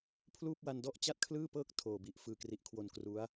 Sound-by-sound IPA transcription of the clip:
pʰ l uː˥˩ p̚ w a˧ n d ɔ˥˩ ʔ t͡ɕ a˥˩ t̚ kʰ l ɯː˥˩ p ɤː˥˩ k̚ tʰ oː˨˩ b i˨˩ ʔ f ɯː˨˩ k r i˨˩ ʔ kʰ w o˨˩ n k r u˦˥ a̯

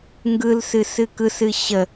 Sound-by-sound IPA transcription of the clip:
ŋ ɡ ɯ l s ɨ s ɨ k ɯ s ɨ ɕ ə

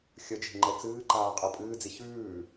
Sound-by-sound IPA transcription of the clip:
xʲ ə d͡ʒ e̤ ŋ͡ǃ ɛ t͡s ɨː ǃ aː qʼ ɤ pʼ ɨː d͡z i ç ʉː

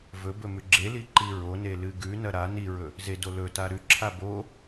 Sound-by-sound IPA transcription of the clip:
v ɵ b ɵ m ʉ ɡ͡ǁ e l i ǃ i ɹ o n e l ɨ ɡ ʉ n ɐ ɾ a n i ɹ ɵ | z e d o l ɵ t a ɾ ʉ ǁʰ a b o

